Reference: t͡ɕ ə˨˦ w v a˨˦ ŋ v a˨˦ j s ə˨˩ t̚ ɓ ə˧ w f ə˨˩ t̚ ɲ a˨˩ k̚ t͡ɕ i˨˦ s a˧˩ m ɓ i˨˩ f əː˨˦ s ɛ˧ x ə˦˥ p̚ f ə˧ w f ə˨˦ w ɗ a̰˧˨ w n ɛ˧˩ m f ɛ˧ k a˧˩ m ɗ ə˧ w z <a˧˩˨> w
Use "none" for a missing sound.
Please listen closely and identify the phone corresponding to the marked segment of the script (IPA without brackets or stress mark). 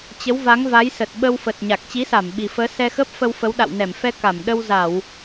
a˧˩˨